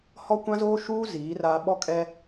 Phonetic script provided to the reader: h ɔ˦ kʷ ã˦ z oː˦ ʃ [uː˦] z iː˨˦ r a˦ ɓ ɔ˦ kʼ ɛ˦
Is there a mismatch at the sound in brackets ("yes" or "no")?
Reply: no